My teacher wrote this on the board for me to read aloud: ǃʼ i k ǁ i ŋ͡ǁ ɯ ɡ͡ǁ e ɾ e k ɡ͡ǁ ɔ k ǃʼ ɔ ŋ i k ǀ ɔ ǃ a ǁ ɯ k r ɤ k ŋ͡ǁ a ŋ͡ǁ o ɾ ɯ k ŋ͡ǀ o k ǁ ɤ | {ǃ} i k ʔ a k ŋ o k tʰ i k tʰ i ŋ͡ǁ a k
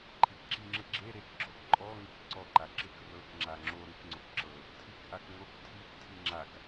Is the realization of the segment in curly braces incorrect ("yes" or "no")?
yes